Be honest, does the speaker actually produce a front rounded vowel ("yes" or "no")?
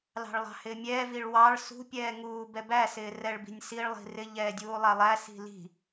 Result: no